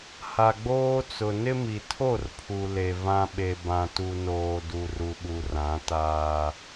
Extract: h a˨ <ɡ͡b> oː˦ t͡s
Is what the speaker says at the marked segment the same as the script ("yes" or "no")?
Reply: yes